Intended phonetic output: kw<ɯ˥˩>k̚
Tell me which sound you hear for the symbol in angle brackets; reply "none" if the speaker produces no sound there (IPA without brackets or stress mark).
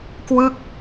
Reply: ɯ˥˩